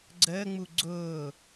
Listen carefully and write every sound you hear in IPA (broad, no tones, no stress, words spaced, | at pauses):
ɡ͡ǀəːŋ͡mu ɡ͡ǀʊː